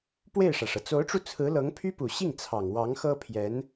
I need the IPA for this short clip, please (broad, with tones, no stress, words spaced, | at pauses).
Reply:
pwe˥˩ɪ̯ʂä˩ʂɤ˩ t͡so˧˥ʊ̯ʈ͡ʂu˧ t͡sʰɹ̩˧˥lɤ˧˥ŋpʰy˥pu˨˩ ɕi˥˩ŋt͡sʰɑ˨˩ŋ wɑ˧˥ŋxɤ˥pʰjɛ˧˥n